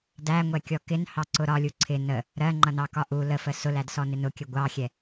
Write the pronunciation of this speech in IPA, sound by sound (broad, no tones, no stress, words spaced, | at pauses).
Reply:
dæŋʷɛkʲɔ kɪnhɑǀʊ ɾɒlʲu ǀʰɪ nə | ɾɜŋ͡ǃʌnɑkɒ ʔu ləfə sʊlædsɔnɪ nʊkʲə ɡʷɑxʲɛ